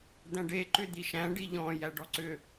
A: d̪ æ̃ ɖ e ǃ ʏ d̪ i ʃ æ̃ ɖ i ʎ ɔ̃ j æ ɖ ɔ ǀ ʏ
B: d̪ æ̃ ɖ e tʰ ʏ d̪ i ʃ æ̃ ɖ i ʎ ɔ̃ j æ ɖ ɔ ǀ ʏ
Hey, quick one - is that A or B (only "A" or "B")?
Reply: A